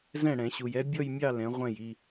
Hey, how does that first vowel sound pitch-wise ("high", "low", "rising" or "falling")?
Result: falling